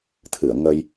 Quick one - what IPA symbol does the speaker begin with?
t̪ʰ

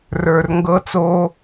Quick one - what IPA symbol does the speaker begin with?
r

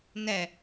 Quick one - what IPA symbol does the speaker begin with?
n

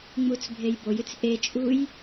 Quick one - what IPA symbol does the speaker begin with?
ŋ͡m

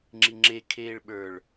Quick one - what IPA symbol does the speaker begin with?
ŋ͡ǁ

